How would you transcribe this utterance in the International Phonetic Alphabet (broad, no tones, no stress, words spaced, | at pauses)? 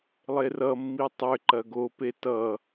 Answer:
lˠerʌmːi tˤʏ ǃɐɡope tʌ